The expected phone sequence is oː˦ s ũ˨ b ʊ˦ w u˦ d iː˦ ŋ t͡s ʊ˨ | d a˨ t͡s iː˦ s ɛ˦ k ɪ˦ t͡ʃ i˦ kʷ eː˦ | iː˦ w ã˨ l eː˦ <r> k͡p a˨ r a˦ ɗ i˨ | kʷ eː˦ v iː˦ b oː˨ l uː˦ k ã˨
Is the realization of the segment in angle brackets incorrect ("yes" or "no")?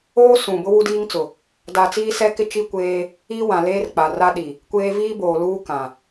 no